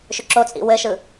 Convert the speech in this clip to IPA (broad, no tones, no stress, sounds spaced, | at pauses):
ʃ ʏ ǁ o t͡sʼ ḭ w ɘ ʃ ɯ